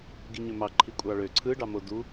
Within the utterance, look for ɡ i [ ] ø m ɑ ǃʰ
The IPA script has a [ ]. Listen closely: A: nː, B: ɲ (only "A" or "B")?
B